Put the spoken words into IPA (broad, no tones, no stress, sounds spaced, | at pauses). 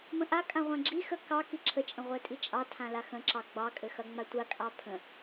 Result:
m ə̃ ʔ a kʼ ã ʁʷ ã ɡ͡ǁ i x ə k ɑ k i ǁʰ ə t͡ʃʼ ə̃ ʁʷ ɛ tʼ i t͡ʃʼ ɑ tʰ ã l a x ə̃ ǁ ɑ ɡ͡b ɑ kʼ ɘ x ɐ ŋ͡m a tʷ a kʼ ɑ pʰ ə̃